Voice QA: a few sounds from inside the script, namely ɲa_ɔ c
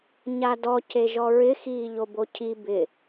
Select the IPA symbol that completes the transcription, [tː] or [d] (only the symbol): d